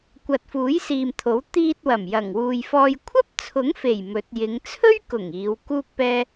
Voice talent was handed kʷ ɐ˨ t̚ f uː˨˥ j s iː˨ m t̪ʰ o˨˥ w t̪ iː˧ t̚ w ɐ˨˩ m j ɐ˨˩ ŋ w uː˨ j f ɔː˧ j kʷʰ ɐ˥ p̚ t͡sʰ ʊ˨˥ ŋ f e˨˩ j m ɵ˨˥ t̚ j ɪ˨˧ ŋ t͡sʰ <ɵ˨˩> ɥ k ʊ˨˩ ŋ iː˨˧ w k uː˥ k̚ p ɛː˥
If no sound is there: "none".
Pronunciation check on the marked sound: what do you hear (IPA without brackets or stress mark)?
ɵ˥